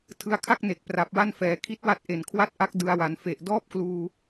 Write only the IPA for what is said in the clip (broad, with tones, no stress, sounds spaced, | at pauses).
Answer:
tʰ ɯ˧ a̯ kʰ a˥˩ k̚ n e˨˩ k̚ p r a˨˩ p̚ w a˥˩ n f ɛː˩˦ kʰ i˦˥ t̚ w a˦˥ t̚ ʔ e˨˩ n kʰ w a˥˩ t̚ ʔ a˦˥ k̚ d ɯ˧ a̯ w a˩˦ n f e˨˩ ʔ d ɔː˥˩ p̚ k l uː˧